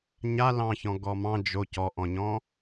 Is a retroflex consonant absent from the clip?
yes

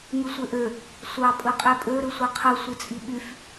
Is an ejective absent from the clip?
no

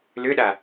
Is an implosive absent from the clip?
no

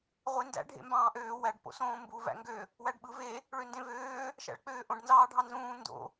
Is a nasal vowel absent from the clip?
no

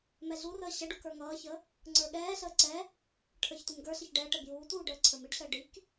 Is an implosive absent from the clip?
no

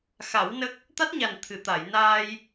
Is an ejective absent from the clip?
yes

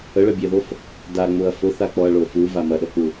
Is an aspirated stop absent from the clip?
yes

